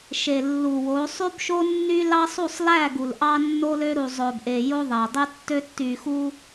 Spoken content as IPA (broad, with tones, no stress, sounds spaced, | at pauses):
ʃ e˨ lː u˨ w o˨˦ sˤ y˦ b ʃ o˦ nː y˦ l ɑ˦ sˤ u˦˨ sˤ l æ˦˨ ɡ u˨ l ʔ ɑ˦ nː o˦ l ø˦ ɾ u˨ zˤ ø˨ b ʔ e˨ j o˦ ðˤ æ˨ dˤ y˦ tː ø˦ tː y˨ x u˦